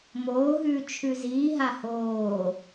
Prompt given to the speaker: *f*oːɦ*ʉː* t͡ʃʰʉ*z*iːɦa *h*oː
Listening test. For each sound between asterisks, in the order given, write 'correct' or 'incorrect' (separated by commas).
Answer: incorrect, correct, correct, correct